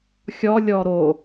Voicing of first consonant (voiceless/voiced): voiceless